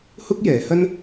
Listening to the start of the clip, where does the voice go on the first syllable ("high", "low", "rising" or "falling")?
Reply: high